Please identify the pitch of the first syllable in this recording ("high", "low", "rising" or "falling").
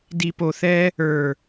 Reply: low